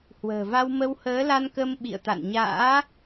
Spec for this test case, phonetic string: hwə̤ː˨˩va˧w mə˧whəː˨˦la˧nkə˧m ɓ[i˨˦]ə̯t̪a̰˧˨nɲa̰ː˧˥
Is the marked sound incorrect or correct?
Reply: incorrect: ḭ˧˨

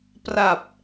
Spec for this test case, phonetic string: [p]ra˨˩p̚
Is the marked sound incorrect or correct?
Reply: correct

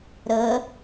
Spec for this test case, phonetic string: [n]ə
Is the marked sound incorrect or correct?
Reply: incorrect: ɾ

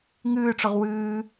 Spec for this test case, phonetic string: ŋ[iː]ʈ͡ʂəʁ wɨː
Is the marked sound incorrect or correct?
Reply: incorrect: ɨː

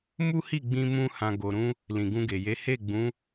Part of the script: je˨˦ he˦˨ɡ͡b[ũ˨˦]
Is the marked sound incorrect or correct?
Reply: correct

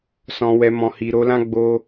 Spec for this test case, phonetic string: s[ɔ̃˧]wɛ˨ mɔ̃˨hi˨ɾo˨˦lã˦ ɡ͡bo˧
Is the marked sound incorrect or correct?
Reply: incorrect: ɔ̃˨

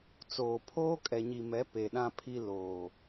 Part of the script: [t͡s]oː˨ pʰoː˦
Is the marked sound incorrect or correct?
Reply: correct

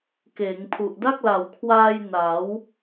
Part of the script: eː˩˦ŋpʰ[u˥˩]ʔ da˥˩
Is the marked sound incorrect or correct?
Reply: incorrect: u˨˩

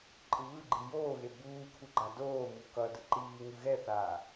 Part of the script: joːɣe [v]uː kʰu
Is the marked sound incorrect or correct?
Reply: incorrect: b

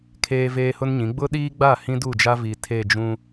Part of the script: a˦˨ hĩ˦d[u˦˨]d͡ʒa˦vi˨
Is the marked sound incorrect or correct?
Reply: correct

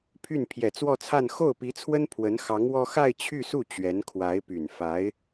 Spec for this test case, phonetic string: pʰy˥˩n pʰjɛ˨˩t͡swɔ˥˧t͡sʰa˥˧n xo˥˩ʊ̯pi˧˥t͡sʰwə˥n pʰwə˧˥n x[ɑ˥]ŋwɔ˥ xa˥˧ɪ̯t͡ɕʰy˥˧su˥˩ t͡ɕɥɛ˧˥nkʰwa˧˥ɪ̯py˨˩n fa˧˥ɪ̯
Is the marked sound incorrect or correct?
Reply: incorrect: ɑ˧˥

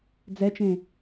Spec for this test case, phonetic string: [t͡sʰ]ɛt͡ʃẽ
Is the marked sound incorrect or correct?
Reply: incorrect: d͡z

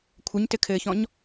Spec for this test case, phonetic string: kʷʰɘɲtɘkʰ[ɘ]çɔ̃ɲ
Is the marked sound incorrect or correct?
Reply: incorrect: ɘː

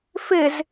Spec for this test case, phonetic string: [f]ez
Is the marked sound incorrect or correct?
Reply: correct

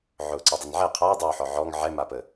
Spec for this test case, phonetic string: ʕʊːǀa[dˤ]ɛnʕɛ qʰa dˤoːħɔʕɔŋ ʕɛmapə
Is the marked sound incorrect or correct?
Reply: correct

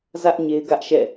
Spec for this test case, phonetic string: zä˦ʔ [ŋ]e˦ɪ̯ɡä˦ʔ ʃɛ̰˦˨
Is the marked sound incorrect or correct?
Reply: incorrect: ɲ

